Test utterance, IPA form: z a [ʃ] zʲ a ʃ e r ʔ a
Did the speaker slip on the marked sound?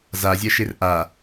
yes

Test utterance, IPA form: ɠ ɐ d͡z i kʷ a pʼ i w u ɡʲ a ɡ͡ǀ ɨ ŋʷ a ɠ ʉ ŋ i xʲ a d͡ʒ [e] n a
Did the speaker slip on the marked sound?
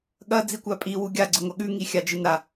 yes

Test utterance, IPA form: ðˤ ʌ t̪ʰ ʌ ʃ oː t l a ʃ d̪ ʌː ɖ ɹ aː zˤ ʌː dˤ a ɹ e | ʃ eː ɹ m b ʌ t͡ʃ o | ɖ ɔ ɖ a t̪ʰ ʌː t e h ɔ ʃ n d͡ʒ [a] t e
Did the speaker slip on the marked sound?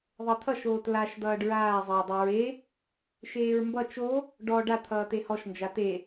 no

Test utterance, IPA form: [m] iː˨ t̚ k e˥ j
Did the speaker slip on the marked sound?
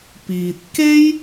yes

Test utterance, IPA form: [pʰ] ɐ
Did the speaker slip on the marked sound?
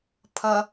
no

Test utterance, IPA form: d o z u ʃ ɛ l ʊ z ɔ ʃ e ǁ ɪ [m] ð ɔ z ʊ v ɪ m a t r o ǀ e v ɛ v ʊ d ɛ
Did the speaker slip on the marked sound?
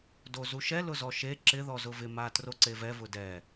yes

